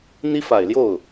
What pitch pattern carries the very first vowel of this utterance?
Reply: high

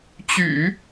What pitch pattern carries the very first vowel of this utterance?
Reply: low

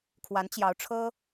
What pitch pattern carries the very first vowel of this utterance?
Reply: rising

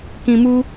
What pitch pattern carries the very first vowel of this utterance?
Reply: low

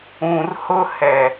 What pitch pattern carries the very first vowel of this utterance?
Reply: low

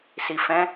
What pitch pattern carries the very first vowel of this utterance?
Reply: low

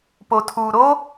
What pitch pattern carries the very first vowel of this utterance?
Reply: low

